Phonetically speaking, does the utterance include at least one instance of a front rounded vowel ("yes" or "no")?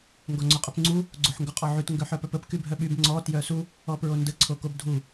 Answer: yes